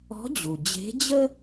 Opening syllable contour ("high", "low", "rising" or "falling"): rising